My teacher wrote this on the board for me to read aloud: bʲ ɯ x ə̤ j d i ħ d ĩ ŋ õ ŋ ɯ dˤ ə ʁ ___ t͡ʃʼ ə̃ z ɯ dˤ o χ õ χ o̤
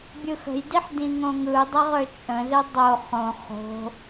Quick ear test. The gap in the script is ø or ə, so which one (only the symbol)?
ø